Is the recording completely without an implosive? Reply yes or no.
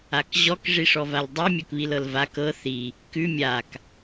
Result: yes